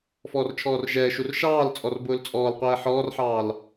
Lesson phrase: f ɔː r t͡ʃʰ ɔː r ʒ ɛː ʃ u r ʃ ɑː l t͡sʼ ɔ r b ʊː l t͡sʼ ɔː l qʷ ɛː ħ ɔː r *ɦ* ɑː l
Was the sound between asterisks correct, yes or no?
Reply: no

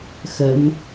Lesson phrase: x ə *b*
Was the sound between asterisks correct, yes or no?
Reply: no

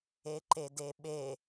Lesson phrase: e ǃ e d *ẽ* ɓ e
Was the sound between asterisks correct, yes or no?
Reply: no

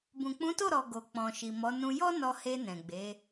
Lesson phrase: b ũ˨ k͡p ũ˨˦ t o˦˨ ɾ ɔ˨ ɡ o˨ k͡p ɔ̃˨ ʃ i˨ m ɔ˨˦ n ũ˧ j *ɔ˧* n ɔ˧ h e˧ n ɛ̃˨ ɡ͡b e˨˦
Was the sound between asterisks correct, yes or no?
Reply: no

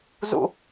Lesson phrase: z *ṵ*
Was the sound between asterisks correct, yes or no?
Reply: yes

